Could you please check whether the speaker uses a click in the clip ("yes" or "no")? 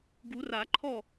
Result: yes